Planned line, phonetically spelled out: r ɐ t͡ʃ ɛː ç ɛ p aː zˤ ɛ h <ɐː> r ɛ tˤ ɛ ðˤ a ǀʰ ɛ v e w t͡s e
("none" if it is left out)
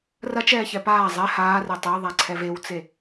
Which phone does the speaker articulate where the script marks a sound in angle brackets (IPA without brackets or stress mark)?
aː